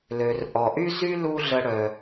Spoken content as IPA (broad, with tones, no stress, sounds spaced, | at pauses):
l ø˩ r ʔ ɔ˩ ʔ y˥ z y˥ l u˥ ɮ ə˧ ɽ œ˩